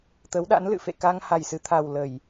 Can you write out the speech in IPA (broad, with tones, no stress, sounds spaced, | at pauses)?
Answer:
t̪ ə˨˦ w ɗ a̰˧˥ n l ɨ̰˧˨ f ḛ˧˨ k a˧ ŋ h a˨˩ j s ɨ˨˩ t̪ʰ a˨˩ w l ə˧˩˨ j